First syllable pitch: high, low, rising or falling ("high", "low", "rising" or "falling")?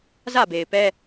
falling